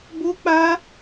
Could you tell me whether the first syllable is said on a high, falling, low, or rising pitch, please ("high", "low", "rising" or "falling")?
high